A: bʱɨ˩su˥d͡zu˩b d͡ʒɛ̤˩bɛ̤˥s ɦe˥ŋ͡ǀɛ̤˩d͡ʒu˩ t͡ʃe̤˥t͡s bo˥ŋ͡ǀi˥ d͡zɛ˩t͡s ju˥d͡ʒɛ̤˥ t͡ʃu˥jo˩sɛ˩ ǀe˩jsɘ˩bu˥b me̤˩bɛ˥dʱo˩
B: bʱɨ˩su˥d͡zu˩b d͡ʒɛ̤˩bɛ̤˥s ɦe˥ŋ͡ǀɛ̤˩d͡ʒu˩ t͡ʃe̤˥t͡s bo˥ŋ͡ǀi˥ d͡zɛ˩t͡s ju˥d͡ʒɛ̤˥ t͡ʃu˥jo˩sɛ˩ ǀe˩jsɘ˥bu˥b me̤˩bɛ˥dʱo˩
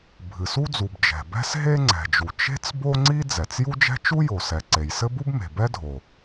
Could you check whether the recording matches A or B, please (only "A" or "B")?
B